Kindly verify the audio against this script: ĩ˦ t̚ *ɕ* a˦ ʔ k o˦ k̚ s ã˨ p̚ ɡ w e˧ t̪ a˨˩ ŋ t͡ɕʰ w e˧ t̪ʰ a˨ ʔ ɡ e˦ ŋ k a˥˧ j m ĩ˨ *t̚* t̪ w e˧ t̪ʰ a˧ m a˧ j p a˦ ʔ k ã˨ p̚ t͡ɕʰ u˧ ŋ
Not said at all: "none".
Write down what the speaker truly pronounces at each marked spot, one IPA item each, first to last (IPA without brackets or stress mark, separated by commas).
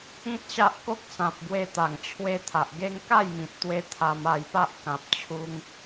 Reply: ɕ, t̚